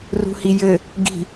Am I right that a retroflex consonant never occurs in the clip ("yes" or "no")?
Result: yes